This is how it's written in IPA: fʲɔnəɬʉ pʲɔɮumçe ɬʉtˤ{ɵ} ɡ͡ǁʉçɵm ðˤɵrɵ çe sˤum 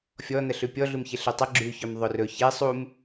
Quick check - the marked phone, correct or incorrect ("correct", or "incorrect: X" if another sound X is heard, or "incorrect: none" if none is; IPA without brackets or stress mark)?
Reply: incorrect: ə